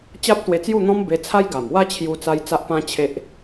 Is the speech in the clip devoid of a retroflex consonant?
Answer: yes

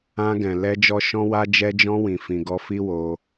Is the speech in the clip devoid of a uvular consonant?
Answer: yes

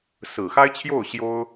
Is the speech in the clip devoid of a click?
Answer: yes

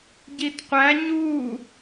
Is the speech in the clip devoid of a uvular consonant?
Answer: no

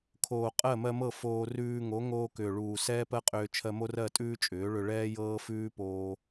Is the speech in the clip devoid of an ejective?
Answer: no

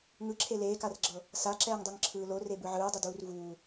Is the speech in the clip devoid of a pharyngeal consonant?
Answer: no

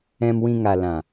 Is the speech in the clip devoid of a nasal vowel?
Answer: no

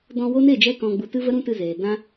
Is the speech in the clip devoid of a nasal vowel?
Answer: no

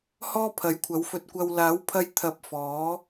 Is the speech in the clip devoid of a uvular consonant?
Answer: yes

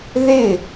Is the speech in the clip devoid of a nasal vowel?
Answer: yes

